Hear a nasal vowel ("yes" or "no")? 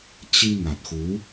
no